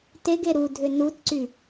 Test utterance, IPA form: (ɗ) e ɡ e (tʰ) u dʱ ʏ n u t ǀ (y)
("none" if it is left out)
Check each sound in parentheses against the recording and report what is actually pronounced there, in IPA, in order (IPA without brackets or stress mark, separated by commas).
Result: t, ɾ, y